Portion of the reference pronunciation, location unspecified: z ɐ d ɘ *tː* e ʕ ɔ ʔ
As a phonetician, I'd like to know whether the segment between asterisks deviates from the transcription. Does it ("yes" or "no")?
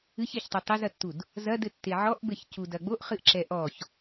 no